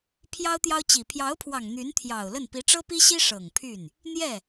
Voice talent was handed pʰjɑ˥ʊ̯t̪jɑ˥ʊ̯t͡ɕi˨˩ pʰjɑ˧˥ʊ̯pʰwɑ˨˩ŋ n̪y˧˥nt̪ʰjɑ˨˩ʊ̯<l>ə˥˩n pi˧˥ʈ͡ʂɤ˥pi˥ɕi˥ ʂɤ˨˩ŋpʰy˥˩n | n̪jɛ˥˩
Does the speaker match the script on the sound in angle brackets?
yes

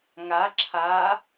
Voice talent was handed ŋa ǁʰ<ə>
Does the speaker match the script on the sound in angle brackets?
no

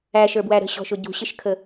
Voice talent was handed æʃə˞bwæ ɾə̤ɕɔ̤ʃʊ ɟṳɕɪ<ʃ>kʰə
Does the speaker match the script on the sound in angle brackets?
yes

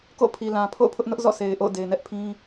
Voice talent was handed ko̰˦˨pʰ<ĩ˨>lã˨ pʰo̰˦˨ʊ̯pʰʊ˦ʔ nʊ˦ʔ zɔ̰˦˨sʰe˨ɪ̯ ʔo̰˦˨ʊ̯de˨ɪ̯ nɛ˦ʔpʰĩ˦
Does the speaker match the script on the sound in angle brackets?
no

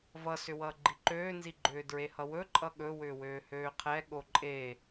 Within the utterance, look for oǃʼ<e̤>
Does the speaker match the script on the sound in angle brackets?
no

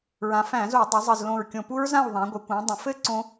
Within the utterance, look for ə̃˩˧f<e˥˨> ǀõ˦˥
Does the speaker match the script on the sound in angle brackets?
no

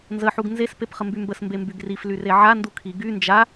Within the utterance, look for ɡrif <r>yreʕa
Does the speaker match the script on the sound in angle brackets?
no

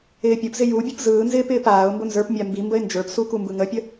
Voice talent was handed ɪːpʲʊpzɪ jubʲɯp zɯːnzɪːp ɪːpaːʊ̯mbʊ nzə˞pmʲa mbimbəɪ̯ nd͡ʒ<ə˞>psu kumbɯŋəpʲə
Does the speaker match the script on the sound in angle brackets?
yes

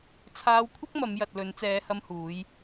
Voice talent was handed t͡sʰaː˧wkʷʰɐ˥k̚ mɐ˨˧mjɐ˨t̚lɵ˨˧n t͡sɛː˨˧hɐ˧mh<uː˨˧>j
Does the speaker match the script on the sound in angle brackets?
yes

